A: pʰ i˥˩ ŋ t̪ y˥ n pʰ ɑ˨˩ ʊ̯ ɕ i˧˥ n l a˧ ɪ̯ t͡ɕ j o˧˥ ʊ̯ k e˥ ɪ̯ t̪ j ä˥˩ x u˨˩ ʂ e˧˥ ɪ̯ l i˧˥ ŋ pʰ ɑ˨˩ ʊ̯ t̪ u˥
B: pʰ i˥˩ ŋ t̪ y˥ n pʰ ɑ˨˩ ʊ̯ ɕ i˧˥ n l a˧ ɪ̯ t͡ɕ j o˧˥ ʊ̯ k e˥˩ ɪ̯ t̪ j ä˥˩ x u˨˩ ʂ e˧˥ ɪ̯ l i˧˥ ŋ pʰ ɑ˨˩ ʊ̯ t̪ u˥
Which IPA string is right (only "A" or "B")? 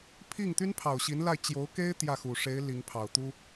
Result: A